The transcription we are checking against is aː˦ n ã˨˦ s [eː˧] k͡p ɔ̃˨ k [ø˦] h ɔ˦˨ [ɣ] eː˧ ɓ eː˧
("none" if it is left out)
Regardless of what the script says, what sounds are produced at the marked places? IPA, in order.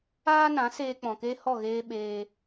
eː˧, e˦, ɣ

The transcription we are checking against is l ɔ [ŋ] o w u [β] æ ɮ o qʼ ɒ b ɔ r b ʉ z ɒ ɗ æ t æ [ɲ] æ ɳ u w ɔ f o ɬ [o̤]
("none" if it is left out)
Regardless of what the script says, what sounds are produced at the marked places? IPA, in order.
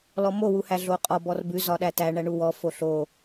m, h, ɳ, o

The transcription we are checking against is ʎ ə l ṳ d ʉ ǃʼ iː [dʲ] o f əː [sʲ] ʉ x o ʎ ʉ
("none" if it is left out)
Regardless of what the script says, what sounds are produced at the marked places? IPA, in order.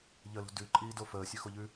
d, sʲ

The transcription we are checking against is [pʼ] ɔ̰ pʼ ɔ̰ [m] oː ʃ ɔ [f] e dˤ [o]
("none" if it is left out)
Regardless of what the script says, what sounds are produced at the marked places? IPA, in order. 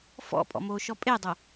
f, m, pʼ, o

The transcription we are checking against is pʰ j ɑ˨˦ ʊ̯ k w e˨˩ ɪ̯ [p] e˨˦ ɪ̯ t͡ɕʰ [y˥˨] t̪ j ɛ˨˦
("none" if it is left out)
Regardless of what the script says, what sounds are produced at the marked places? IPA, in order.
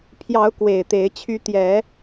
t̪, y˦

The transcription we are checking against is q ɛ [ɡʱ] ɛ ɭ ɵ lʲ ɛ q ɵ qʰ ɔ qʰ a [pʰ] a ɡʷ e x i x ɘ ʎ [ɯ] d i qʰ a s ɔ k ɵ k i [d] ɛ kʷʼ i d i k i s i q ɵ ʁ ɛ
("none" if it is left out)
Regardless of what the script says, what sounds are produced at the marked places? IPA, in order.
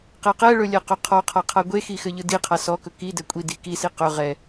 q, qʰ, ɯ, d

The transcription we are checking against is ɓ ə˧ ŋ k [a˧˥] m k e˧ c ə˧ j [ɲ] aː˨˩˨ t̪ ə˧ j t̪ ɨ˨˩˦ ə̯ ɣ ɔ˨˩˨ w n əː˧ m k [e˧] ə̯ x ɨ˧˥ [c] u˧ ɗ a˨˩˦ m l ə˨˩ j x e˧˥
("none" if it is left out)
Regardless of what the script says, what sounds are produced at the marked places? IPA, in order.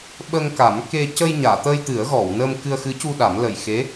a˨˩˦, ɲ, ɨ˧, c

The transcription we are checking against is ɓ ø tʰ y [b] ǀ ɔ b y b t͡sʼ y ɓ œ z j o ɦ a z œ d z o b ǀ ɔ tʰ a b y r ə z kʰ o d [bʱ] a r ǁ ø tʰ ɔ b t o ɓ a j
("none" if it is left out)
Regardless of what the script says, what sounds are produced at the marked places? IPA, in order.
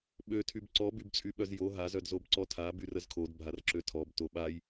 b, bʱ

